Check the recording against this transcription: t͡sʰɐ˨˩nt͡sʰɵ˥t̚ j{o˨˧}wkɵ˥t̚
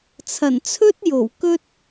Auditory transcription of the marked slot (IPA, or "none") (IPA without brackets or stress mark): o˨˩